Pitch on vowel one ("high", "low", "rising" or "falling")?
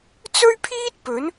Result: high